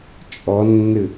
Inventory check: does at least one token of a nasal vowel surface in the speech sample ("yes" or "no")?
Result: no